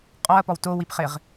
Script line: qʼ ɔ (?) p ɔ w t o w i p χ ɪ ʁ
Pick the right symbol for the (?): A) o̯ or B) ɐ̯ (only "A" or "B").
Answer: B